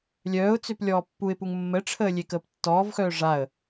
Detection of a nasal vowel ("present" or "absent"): absent